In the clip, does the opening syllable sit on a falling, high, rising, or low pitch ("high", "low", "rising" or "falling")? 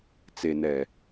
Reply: low